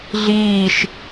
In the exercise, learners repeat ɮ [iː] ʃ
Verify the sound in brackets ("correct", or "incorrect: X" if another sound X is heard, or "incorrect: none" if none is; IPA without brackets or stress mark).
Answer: correct